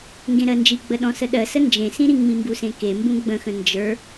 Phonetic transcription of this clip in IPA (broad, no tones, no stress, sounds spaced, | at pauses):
ŋ ɡ ẽ ɾ ɜ n d͡ʒ i ɡ͡b ə ɗ ɔ̃ s ə ɗ ɜ s ə n d͡ʒ ẽ s ĩ ɾ ĩ ŋ͡m ĩ m b u s ẽ k e m b ũ ɡ͡b ə̃ x ə̃ n d͡ʒ ə˞